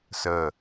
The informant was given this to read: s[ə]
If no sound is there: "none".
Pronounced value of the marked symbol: ə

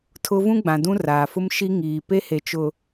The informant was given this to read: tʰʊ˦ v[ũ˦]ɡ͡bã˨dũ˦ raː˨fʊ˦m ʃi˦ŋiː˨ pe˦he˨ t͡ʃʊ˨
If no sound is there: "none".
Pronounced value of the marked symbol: ũ˦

